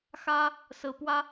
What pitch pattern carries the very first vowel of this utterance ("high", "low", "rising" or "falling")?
high